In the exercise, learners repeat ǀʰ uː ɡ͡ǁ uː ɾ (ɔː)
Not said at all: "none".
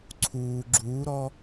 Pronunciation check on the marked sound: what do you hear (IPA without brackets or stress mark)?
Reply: ɔː